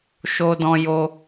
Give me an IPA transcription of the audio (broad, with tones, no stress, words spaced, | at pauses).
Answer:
ʃo˦dɔ̃˦ jo˧